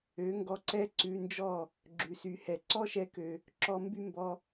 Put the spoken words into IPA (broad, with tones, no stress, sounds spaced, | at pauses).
ø˨˦ ŋ ɡ ɔ˧ ǀ ɛ˦ ǀ ʉ˧ n d͡ʒ ɔ˦˨ | ɡ͡ǁ ʉ˨ s y˨ h ɛ˨ ǀ ɔ˦ ʃ ɛ˧ k ø˨ | ǁ ɔ˧ m b y˦ m b ɔ˧